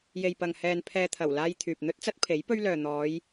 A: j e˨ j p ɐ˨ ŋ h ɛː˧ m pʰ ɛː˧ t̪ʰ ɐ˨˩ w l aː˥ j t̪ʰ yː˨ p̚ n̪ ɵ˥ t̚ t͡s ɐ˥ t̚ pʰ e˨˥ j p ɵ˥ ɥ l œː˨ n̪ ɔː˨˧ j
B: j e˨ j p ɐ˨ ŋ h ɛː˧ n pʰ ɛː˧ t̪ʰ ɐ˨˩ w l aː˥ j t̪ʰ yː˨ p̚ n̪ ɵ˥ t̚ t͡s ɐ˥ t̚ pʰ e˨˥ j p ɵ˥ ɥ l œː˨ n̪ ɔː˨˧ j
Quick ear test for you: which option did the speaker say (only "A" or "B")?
B